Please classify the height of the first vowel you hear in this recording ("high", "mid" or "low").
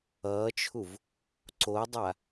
mid